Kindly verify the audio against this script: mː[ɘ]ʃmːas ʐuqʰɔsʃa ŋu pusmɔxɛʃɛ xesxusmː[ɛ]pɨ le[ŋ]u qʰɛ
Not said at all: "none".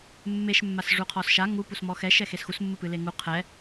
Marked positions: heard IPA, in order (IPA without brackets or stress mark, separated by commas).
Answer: e, ɨ, ŋ